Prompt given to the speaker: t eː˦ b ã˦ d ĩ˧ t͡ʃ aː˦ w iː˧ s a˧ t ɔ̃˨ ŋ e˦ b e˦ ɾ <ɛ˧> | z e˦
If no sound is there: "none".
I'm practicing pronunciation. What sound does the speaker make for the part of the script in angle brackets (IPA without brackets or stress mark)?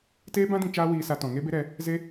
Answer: ɛ˧